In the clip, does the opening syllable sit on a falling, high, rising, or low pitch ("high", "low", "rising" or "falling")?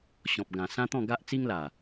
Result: low